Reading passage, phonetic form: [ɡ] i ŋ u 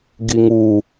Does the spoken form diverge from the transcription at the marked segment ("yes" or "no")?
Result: no